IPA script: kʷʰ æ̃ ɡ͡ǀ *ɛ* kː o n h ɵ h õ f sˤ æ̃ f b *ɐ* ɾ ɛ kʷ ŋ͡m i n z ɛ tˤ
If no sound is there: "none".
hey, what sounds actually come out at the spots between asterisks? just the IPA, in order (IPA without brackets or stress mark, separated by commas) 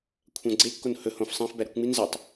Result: e, æ